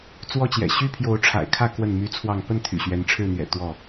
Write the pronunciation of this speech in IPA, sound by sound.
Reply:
t͡s w ɔ˦ t͡ɕ j ɛ̰˨˩ ɕ y˦ pʰ j o˨˦ ʊ̯ ʈ͡ʂʰ a̰˨˩ ɪ̯ kʰ ä˥˨ k w ə˥˨ n m y˦ t͡sʰ w ɑ˥˨ ŋ p ə˥˨ n t̪ʰ y̰˨˩ ɕ ɥ ɛ˨˦ n ʈ͡ʂʰ ɻ̩˥˨ n̪ ɥ ɛ̰˨˩ t̪ w ɔ˥˨

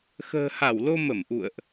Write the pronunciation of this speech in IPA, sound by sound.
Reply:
x ə̤ː˨˩ h a˧˩ w l o˧ m ə˧˩ m ʔ ṵ˧˨ ə̯ ʔ

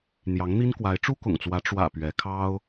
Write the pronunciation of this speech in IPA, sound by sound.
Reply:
n̪ j ɑ˧˥ ŋ n̪ i˥ n k w a˧˥ ɪ̯ ʈ͡ʂ u˥ k ʊ̰˨˩ ŋ t͡s w ä˧˥ ʈ͡ʂ w ä̰˨˩ p ɥ ɛ˧˥ kʰ ɑ˥ ʊ̯

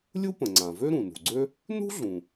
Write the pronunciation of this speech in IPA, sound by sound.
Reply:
lʲ u˥ p ə̃˩ ŋ͡ǀ ã˩ v ø˥ ɾ ũ˩ n ṳ˩ ɡ͡ǀ ø˥ | n ṳ˥ ɮ ũ˩

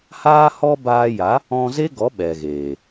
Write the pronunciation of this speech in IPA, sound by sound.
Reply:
h aː˦ h ɔ˦ b aː˧ j a˨˦ | ɔ̃˧ z e˦ ɡ ɔ˨˦ ɓ ɛ˨ ɣ eː˨

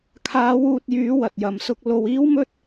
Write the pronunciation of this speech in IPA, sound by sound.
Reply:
kʰ aː˨˧ w uː˧ t̚ j yː˨˧ w ɐ˨ t̚ j ɐ˨ m s ʊ˥ k̚ l o˧ w iː˥ w m ɵ˥ t̚

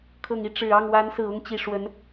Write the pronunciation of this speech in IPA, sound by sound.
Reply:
kʰ ɤ˨˩ ŋ i˥˩ ʈ͡ʂ ɻ̩˨˩ ɑ˥˩ ŋ w a˧˥ n s ɹ̩˨˩ ʊ˥˩ ŋ t͡ɕ i˨˩ ʂ w ə˧˥ n

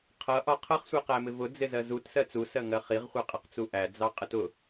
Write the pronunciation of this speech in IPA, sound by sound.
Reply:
qʰ ʌ ʔ ɒ qʰ ʌ χ sʷ ɛ q æ m ɪ v ʊ d͡z ɪ z ɜ z u t s ɜ t͡s u s ɜ ŋ ɜ χ i ʁ χʷ ɜ qʼ ʌ q t͡s u ʔ æ d͡z ɑ qʼ ə t ʊ

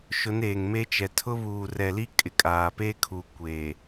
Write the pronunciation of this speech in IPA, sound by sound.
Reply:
ʃ ʊ˨˦ n eː˨ ŋ m e˦ t͡ʃ ɛ˨ tʰ ʊ˦ β uː˨ r ɛ˨ l i˦ kʼ ɪ˨ kʼ aː˨ p eː˦ kʰ uː˨ kʷ e˨

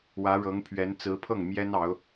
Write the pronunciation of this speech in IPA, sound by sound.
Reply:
w ä˧˥ ɻ ɤ˧˥ ŋ pʰ ɥ ɛ˧˥ n t͡s ɹ̩˧˥ pʰ ɤ˥˩ ŋ m j ɛ˥ n ɑ˧˥ ʊ̯

